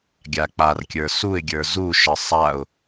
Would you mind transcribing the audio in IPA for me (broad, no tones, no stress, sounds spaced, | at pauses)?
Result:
ɡʲ a k͡p a r kʲ ə˞ s u ɪ̯ ɡʲ ə˞ z u ʃ ə sˤ a ʊ̯